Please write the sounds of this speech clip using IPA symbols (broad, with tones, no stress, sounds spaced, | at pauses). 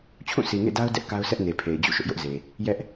t͡ɕʰ ũ˦˨ sʰ i˨ ŋ ḛ˦˨ d a˦ ʊ̯ d ɛ˦ ʔ k a˦ ʊ̯ sʰ ɛ˦ ʔ n e˨ pʰ e˨ ɪ̯ d͡ʑ ṵ˦˨ ʃ ʊ˦ ʔ j ʊ˦ ʔ z e˨ | j ɛ˦ ʔ